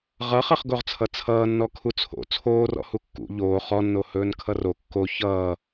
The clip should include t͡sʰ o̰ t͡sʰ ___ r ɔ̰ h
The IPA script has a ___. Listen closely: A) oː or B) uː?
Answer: A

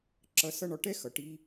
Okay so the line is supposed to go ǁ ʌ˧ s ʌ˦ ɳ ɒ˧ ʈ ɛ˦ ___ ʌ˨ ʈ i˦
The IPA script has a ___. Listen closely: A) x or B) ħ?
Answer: A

